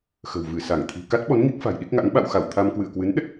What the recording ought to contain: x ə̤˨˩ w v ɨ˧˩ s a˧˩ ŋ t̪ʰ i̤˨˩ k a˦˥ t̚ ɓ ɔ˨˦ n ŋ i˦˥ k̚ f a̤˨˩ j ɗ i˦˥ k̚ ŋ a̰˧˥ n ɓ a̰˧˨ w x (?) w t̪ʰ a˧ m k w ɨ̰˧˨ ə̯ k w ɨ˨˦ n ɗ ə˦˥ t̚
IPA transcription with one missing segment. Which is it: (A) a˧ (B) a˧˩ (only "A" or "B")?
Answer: B